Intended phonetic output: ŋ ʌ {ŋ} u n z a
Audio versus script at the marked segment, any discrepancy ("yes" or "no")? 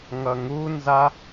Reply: no